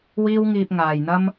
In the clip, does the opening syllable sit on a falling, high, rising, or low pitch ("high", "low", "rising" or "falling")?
high